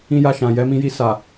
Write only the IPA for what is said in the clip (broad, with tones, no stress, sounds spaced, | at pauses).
ĩ˧ j a˧ ʃ ã˨ j ɛ˨˦ m ĩ˧ j i˧ s a˨